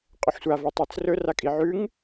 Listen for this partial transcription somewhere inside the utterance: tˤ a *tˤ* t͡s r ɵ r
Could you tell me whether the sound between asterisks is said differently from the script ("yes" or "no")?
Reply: yes